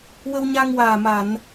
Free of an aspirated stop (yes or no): yes